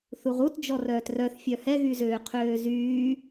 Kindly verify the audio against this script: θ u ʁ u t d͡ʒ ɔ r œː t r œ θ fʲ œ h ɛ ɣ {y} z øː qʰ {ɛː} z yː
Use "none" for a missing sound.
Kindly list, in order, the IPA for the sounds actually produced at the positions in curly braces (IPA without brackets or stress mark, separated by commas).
y, øː